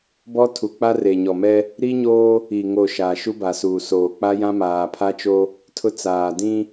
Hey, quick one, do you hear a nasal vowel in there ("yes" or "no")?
yes